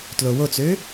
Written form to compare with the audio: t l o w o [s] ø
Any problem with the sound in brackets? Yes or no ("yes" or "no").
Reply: yes